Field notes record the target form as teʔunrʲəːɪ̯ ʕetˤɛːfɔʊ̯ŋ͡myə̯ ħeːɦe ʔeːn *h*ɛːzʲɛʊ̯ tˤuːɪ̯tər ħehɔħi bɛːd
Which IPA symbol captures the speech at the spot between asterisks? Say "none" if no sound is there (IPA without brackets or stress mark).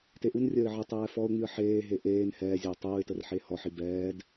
h